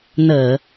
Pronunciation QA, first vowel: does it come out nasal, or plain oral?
oral